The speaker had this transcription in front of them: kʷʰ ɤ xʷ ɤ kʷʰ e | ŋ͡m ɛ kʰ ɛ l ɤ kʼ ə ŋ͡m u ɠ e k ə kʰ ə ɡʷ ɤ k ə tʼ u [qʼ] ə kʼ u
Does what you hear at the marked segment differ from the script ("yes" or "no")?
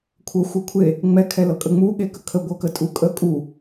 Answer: yes